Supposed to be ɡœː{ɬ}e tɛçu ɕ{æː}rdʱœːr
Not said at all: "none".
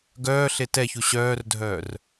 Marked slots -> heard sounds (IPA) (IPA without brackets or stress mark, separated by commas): ɬ, œː